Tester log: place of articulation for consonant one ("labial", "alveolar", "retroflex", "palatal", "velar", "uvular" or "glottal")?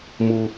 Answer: labial